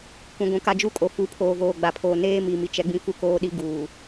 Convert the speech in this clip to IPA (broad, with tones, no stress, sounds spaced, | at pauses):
kʷ ĩ˨ ɡʷ ũ˨ k a˦ d͡ʒ u˦ kʼ o˨ f u˨˦ pʰ oː˨ v oː˨ ɡ͡b a˨ pʰ oː˨ n eː˦ m i˨ m i˨ t͡ʃ ɛ˦ ɡ͡b ĩ˦ f u˦ k oː˦ ɗ i˦ ɡ uː˨